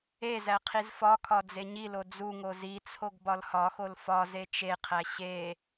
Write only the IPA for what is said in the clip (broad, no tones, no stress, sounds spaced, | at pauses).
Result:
e z æ qʰ i z f ɒ kʰ ɒ d͡z e ɲ i l o d͡z u ŋ o z i t͡sʰ o ɡ b ɒ l h ɒ x o l f ɒ z e t͡ʃ e qʰ æ ɕ e